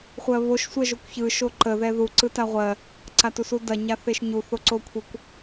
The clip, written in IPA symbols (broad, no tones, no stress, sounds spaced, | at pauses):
χʷ ɜ β o ʃ sʷ ɜ ʒ o kʷ ç ɯ ʃ o ǃ ə ð ɛ ð u ǀ ɯ t a ʁʷ ɜ | ǀ a t u s u d ɐ ɲ a θ e ʃ ɲ u θ o ǀ o kʷʰ e kʷ